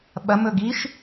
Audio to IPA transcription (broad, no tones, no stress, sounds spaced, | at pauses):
ɓ ɐ m ɵ ɡ i ʃ